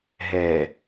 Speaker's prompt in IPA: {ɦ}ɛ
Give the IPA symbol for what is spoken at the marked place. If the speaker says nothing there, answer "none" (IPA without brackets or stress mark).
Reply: ɦ